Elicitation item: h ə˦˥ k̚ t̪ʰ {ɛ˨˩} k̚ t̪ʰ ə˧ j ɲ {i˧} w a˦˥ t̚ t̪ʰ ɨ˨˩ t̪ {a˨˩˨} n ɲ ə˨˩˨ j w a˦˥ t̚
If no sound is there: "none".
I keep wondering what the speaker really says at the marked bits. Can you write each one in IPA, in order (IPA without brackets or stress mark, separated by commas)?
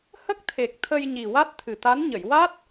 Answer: e˨˩, i˨˩, a˧˥